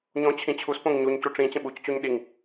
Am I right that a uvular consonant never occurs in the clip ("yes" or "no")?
yes